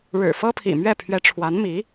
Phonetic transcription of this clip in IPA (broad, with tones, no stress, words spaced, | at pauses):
ɻɻ̩˨˩fɤ˥pʰḭ˨˩ mɥɛ˥˩pʰɥɛ˧˥ ʈ͡ʂʰwa˧˥nmi˧˥